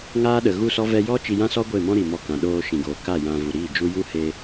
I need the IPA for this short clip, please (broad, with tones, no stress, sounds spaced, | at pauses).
ŋ aː˦ ɗ ə˨ ɣ u˦˨ s ɔ˦ v ɛ˦ j ɔ˦ t͡ʃ i˧ j ã˦ s ɔ˦ ɡʷ e˦˨ m ɔ̃˦ ɾ i˨ m ɔ˧ k ã˨ ɗ oː˧ ʃ ĩ˨ ɡ oː˨ k a˦˨ j ã˧ v u˨ ɾ iː˦˨ d͡ʒ u˦ j u˦ h e˧